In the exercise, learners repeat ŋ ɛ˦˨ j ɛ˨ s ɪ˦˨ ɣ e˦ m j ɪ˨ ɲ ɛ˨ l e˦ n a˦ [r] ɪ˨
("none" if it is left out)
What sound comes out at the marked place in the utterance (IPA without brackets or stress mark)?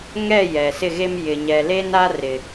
r